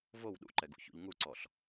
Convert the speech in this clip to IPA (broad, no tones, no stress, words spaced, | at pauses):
vow ɗṵǃɛɡṵçṵʎ ŋuǀɔɬ